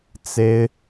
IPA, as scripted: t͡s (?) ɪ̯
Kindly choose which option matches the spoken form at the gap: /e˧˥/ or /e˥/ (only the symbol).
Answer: e˥